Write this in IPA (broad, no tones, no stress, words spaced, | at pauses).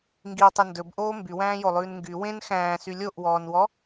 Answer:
ŋɡiwtˤe ndɵbʔoː mbywæ̃ːjolˠʉːn ŋɡy wẽn xæ̃ːsy lʲoʔwɔːnwɔ